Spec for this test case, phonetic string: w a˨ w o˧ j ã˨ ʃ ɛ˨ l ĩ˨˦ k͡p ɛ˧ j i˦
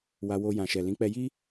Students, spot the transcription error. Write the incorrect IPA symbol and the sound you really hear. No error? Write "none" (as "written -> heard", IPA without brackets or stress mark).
a˨ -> a˧